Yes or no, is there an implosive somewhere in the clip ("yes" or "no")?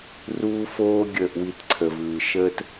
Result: no